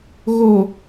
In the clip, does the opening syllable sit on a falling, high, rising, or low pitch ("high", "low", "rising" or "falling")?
low